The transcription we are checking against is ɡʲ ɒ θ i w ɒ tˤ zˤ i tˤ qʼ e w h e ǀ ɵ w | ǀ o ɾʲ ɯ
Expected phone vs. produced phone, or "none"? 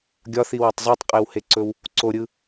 none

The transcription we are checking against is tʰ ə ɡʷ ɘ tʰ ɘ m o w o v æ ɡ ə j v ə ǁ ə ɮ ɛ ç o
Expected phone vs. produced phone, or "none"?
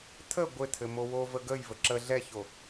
æ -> ə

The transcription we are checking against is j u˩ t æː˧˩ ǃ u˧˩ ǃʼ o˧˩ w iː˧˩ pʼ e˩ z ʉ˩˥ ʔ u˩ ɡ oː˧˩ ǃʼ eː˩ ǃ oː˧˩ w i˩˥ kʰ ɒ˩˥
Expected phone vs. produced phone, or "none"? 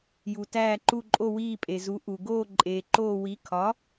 ʉ˩˥ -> u˩˥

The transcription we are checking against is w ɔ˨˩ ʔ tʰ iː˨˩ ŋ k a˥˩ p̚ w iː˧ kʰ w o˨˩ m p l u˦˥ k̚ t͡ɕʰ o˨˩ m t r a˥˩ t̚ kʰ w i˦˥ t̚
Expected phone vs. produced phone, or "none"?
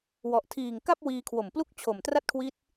none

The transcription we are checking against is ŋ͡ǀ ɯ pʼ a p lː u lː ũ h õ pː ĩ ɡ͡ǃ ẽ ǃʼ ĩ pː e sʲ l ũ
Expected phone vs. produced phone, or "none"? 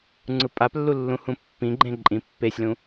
õ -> ũ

